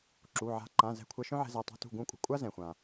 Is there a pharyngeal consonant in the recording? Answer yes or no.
yes